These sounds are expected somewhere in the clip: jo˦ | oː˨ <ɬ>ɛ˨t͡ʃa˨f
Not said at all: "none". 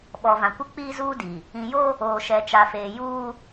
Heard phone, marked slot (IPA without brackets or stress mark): ʃ